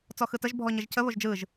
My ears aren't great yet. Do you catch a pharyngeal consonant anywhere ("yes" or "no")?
no